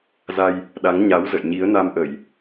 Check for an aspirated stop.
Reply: absent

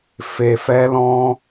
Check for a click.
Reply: absent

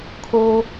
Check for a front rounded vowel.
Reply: absent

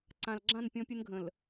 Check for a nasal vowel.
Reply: present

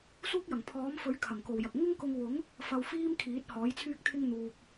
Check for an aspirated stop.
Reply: present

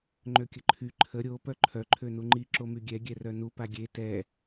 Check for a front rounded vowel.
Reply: present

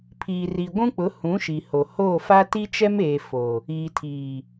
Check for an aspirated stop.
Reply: present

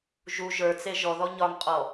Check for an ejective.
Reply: present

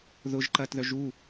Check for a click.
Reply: present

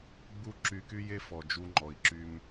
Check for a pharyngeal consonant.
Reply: absent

